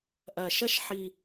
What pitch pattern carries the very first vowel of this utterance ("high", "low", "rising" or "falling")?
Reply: low